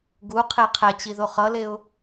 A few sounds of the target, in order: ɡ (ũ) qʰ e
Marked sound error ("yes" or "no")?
yes